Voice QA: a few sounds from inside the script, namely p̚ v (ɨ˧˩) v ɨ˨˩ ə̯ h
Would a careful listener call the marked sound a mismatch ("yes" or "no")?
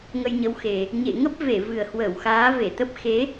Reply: yes